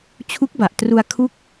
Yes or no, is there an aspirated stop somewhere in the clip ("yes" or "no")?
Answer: yes